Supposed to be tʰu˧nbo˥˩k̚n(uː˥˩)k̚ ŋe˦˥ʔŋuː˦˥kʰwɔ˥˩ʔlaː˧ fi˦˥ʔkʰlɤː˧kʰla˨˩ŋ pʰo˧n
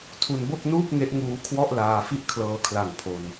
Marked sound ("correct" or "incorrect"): correct